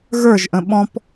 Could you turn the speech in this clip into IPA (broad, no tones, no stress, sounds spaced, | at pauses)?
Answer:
ɣ ə˞ ʒ ʔ ə̃ ɓ ɔ̃ p